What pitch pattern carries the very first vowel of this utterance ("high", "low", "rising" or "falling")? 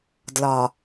low